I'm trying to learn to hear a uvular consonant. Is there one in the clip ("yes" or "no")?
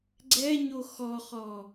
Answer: yes